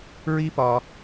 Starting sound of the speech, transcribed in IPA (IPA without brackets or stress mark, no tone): ɹ